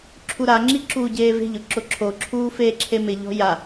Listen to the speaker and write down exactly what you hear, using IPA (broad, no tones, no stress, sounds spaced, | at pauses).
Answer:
ǁʰ u ɾ a ŋ͡ǁ i ǁ uː ɟ eː v e̤ ʎ ʊ ǁ ʊ ǁʰ o ǁʰ uː f eː ǁʰ e m ɪ ʎ ɔ̤ j a